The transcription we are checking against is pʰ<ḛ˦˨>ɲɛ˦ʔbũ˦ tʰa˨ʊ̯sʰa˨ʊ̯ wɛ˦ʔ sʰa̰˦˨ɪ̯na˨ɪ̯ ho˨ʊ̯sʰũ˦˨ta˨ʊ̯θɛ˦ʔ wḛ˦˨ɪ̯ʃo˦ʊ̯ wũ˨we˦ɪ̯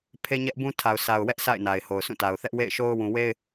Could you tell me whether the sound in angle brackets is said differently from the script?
yes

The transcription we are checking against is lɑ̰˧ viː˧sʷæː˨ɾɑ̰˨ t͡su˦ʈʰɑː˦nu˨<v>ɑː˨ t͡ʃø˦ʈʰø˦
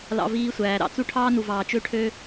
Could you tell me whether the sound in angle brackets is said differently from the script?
no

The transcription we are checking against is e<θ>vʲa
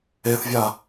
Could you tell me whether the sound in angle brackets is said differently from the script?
no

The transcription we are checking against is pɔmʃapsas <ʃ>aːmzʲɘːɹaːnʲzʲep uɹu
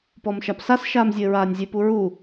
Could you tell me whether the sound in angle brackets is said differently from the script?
no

